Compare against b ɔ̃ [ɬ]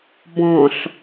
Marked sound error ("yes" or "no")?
no